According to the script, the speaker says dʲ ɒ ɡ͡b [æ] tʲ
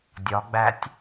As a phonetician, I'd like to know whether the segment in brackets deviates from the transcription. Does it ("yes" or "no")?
no